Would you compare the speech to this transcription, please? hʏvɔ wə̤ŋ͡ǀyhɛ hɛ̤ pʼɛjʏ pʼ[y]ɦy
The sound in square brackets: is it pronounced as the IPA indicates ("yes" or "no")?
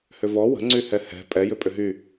no